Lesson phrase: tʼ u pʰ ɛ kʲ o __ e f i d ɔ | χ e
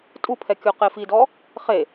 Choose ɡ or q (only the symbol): q